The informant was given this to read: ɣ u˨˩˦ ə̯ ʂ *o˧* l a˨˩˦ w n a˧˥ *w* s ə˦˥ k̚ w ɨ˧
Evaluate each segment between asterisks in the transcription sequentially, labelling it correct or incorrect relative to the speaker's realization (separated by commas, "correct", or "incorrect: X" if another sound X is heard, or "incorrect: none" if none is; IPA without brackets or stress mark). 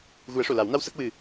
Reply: incorrect: o˨˩˨, correct